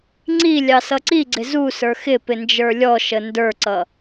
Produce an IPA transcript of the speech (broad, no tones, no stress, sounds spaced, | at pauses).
ŋ͡ǀ i lʲ ɑ s ʌ ǀ i ɡ͡ǀ ɪ z u s ə˞ x ɪ p ɪ n d͡ʒ ə˞ lʲ ɔ ʃ ə n d ə˞ ǀ ʌ